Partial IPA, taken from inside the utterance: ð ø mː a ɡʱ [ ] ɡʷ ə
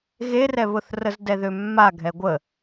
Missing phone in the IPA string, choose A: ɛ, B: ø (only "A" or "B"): A